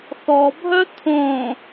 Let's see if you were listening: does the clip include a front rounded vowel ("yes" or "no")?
yes